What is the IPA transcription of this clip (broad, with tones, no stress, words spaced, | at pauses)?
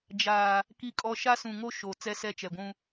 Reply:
d͡ʒaː˨ | ki˦kʼɔ˦ ʃa˦sũ˨ŋo˦ ʃo˨ t͡sɛ˦sɛ˦t͡ʃɛ˨ɡʷũ˦